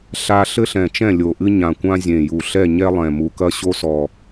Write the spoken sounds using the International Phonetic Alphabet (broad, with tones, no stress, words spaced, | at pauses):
ɬa˦ ɬɘ˦ɬɛ̃˨˩t͡ʃɛ̃˦˨ lʲo˨˩ʔɨ˦ɲã˨˩kʷã˦ zʲẽ˨˩ju˨˩ ɬɛ˦˨ɲɛ˦lˠɛ̃˨˩mu˨˩ kɐ˦ ɕo˦sɔ˨˩